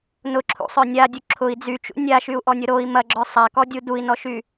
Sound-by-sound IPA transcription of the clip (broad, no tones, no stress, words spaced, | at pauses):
nʊǁʰṵsˤœ nʲadʲu ǁʰʊi̯ d͡zyt͡ʃṵ nʲaʃyu̯ʔɔnʲʊ ɾoi̯ mɐɡ͡ǁœ sˤakɔdʲu dui̯nɔʃy